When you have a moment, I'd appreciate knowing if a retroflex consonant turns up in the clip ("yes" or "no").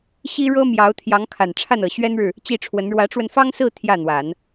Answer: yes